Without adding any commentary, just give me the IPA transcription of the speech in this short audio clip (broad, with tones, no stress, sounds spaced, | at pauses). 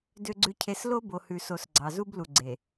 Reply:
d ø˨ ɡ͡ǀ ʉ˨ cʰ e˨ s l o˦ b o˨ h ʉ˨ s o˨ s ɡ͡ǀ ɑ˨ z u˦ b l u˨ ɡ͡ǀ e˨